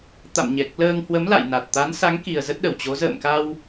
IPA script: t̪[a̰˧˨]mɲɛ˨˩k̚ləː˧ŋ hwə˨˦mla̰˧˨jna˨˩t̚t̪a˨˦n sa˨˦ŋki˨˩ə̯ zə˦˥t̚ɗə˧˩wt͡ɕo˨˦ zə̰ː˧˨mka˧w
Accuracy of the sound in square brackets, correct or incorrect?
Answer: correct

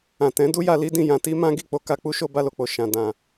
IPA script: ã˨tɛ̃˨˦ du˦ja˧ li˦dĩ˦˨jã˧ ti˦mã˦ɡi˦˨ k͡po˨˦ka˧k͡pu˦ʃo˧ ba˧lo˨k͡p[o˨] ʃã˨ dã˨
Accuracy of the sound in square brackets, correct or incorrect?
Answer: correct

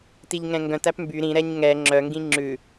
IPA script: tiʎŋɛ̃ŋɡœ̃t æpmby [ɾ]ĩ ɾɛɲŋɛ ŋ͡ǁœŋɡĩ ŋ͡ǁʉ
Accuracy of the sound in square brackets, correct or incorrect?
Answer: correct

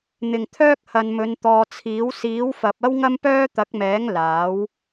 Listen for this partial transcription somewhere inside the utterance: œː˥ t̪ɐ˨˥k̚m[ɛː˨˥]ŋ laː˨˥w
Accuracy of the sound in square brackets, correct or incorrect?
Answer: correct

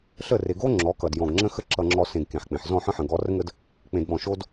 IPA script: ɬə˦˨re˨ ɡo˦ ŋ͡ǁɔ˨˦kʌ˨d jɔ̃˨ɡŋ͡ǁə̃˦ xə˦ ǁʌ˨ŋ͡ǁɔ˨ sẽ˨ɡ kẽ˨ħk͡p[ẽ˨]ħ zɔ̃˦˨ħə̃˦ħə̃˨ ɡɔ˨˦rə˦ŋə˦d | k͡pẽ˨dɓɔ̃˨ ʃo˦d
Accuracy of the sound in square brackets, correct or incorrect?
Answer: correct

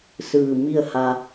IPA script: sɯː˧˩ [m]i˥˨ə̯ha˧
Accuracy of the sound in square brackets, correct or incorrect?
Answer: correct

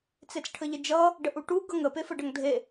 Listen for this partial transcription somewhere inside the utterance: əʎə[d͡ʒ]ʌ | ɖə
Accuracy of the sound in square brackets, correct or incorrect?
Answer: correct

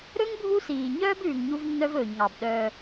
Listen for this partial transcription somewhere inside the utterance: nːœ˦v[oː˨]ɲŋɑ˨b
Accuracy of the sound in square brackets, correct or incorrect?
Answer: incorrect: ɵː˨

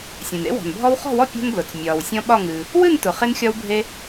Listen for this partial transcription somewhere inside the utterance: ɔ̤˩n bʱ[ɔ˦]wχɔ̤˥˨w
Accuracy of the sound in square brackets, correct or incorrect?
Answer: correct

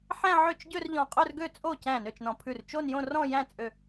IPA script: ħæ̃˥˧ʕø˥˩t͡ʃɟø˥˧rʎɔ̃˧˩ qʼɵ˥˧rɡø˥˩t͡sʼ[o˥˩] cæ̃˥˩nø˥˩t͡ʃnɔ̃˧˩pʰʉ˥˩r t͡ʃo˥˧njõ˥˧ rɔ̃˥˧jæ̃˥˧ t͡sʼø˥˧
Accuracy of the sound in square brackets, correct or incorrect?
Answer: correct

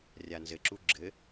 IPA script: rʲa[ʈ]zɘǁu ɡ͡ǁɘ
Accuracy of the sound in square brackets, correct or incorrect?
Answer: incorrect: n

